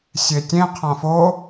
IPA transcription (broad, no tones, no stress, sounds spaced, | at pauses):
sʲ e tʲ ẽ qʰ ã f o